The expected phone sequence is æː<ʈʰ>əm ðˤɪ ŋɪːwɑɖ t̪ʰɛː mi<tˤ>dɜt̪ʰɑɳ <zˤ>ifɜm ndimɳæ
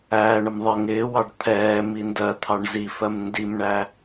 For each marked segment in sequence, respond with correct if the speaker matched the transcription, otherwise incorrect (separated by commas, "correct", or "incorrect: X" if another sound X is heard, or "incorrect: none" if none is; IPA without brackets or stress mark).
incorrect: ɳ, incorrect: n, incorrect: z